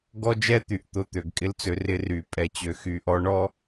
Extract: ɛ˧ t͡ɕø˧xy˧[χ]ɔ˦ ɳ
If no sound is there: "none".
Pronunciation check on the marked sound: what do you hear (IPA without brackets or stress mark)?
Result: ʔ